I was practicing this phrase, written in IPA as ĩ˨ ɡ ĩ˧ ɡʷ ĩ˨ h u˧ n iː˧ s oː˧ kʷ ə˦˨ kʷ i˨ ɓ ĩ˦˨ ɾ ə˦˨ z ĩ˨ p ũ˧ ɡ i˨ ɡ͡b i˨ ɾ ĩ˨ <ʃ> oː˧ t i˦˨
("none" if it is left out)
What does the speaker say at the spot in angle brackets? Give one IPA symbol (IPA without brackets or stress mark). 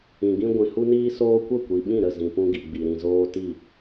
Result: z